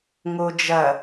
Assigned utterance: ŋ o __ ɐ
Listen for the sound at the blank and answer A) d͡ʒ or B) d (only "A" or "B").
A